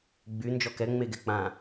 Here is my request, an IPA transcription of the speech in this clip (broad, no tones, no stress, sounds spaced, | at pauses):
ɡ͡b y n d͡ʒ ɔ k ɛ ŋ͡m e ɡ ɛ k͡p ã